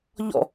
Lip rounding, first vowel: rounded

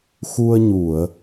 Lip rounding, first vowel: rounded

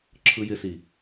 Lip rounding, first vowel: unrounded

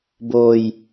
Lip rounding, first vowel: rounded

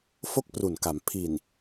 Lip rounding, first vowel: rounded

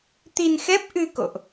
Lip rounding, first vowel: unrounded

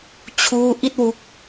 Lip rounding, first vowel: rounded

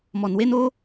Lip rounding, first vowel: rounded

